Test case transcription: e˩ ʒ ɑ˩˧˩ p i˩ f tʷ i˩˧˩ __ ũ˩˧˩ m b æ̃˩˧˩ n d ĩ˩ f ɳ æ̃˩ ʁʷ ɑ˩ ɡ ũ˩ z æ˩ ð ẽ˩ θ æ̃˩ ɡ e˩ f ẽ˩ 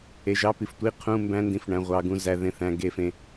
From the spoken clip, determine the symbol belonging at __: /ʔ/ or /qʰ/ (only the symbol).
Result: qʰ